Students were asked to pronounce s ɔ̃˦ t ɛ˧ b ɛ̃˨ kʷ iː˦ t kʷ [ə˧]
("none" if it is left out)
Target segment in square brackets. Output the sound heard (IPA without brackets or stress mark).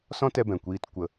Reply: ə˧